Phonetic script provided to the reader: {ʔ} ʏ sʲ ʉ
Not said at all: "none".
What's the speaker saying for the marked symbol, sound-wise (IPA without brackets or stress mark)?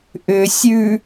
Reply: ʔ